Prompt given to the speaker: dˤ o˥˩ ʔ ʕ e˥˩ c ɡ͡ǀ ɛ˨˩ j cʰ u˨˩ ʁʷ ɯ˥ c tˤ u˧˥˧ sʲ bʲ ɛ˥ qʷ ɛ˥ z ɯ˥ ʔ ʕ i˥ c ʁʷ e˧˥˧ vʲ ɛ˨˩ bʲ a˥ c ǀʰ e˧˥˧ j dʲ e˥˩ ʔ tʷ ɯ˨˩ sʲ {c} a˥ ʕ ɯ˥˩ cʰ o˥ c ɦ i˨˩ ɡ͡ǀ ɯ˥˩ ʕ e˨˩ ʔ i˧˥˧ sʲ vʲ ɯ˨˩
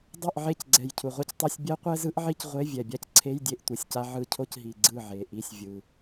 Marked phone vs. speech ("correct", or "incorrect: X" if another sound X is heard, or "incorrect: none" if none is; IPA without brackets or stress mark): correct